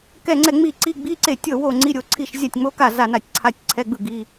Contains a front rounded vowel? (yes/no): no